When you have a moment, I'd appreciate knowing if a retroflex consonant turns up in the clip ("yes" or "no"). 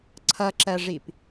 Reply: yes